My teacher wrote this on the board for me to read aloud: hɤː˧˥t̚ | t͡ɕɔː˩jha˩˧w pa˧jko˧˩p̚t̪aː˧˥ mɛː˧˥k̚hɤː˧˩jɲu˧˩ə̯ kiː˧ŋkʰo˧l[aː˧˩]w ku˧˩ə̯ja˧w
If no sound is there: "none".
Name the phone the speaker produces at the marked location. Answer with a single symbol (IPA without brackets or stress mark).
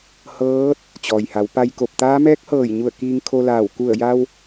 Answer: aː˧˩